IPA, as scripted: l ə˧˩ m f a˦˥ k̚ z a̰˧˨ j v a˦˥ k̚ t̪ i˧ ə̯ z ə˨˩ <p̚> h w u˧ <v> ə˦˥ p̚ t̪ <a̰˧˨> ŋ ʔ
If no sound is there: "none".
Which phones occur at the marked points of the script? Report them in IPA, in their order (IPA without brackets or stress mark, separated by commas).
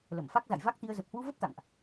p̚, v, a̰˧˨